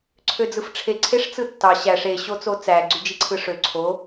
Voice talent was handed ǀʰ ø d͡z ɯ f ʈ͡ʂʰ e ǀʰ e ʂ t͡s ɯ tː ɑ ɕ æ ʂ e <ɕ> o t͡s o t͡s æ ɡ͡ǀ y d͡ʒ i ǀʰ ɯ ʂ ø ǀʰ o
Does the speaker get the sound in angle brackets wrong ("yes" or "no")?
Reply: no